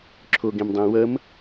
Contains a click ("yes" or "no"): yes